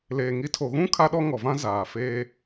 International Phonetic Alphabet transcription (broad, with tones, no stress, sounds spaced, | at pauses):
l eː˨ ŋ i˨˦ tʰ o˨ ɣ ũ˦ kʰ a˦ ɗ ɔ˦ ŋ ɔ˨ v ã˦ z aː˨ f eː˦